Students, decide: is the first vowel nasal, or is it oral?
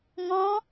nasal